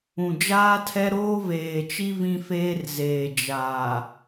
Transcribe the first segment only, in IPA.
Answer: ũ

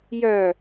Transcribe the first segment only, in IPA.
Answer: j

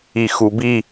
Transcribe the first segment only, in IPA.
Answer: i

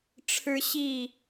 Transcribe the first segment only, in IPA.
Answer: ʈ͡ʂʰ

